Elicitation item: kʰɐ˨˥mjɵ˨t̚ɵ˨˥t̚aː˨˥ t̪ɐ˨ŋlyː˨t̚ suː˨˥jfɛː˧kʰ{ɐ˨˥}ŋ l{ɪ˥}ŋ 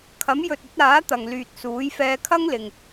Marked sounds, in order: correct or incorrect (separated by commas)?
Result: incorrect, incorrect